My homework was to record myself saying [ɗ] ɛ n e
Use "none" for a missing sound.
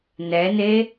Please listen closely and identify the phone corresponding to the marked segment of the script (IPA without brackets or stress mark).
n